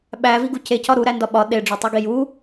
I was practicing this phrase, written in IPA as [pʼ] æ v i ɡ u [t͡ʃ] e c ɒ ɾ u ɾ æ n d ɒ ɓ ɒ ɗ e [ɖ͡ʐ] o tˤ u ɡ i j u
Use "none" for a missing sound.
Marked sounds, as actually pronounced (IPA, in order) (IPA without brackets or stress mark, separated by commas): ɓ, c, ɖ͡ʐ